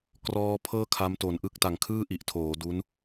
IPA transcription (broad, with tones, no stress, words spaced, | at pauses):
krɔː˦˥pʰɤː˥˩ kʰa˦˥mto˨˩nʔɯ˥˩k̚ ta˨˩ŋkʰɯː˥˩ʔi˨˩ʔtʰoː˩˦ du˦˥n